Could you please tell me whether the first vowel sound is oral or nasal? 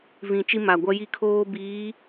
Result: nasal